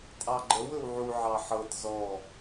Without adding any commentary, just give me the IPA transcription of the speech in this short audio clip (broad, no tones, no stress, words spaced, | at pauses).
tʼɑɡ͡ǃəw ɵwʕu ʕɑħɤt zɔ